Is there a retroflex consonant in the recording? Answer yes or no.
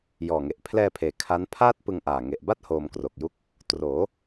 no